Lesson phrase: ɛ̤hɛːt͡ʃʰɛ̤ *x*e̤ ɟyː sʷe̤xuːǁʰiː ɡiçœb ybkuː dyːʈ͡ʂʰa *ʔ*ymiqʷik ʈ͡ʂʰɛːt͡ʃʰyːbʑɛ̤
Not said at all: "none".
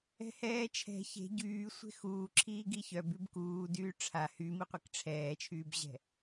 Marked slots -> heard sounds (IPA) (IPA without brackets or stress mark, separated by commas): ç, h